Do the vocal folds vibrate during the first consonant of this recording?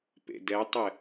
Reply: no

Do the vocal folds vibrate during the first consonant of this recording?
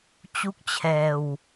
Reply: no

